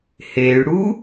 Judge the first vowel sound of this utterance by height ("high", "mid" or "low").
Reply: mid